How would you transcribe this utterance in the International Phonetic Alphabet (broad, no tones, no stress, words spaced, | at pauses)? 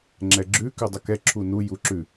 ŋ͡ǁɛɡ͡ǁʉ kʉdˤʊkɛ ǁʰunu juǁʉ